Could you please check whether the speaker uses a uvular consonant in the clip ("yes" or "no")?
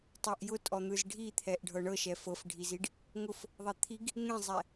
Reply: no